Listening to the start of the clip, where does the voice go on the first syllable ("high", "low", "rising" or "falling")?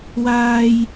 high